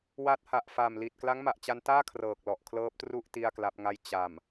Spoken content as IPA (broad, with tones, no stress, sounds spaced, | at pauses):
w a˦˥ t̚ h a˨˩ ʔ f aː˨˩ m l i˨˩ t̚ k l a˦˥ ŋ m a˨˩ ʔ t͡ɕ a˧ n t aː˥˩ kʰ r ɤː˨˩ k̚ l ɔ˨˩ ʔ kʰ l ɤː˦˥ p̚ t r u˥˩ ʔ t i˥˩ a̯ k l a˦˥ p̚ ŋ a˥˩ j t͡ɕ a˨˩ m